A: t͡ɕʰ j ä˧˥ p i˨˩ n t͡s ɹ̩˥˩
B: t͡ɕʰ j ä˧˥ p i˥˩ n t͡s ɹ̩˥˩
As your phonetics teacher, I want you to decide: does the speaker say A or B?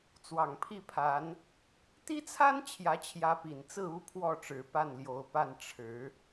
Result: A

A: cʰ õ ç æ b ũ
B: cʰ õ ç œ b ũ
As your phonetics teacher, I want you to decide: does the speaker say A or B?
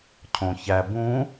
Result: A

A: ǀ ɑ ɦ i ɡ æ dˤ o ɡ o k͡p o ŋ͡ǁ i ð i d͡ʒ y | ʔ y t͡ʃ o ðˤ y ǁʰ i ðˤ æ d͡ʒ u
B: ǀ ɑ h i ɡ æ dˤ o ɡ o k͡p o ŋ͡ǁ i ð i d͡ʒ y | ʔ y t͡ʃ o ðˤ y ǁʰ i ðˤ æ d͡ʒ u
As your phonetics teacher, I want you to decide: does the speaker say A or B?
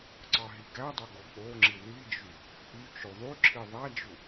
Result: A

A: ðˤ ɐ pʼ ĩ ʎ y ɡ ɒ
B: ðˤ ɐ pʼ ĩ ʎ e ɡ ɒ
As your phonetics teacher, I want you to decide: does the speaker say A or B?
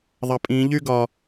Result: A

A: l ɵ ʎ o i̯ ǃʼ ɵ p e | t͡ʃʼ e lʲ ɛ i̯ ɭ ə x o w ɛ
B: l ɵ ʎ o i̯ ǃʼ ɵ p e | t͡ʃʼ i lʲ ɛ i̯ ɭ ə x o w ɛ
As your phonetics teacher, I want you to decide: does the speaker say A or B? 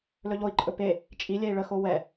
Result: B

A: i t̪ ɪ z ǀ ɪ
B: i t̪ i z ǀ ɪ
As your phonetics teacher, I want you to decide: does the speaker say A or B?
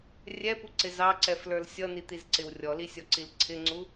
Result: B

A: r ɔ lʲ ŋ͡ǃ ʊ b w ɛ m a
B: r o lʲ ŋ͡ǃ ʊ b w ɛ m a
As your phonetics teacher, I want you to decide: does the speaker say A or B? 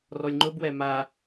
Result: A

